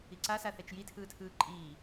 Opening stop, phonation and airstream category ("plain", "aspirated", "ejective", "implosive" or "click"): click